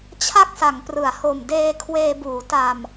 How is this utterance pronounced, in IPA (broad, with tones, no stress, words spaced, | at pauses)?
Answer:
t͡ɕʰa˥˩k̚sa˩˦ŋ prɯ˩˦a̯ho˨˩m deː˧ kʰweː˧buː˩˦ ta˨˩m